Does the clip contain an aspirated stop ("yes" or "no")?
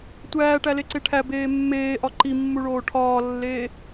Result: yes